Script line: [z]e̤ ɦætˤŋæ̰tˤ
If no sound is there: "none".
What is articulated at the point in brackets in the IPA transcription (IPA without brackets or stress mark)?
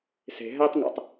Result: s